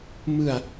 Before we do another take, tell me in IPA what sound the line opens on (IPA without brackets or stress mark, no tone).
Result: m